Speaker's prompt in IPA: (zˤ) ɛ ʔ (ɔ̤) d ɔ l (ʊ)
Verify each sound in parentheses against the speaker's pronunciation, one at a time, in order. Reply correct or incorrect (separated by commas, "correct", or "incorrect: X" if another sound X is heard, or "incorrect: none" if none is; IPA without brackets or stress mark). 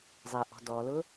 correct, correct, correct